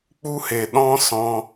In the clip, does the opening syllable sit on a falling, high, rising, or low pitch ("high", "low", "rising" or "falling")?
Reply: high